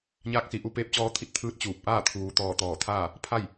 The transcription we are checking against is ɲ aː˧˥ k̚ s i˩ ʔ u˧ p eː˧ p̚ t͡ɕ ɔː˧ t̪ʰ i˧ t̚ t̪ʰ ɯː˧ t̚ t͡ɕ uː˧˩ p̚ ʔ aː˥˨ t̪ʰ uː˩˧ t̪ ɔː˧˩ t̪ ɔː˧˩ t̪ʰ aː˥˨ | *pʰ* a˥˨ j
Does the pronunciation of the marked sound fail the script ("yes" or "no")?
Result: no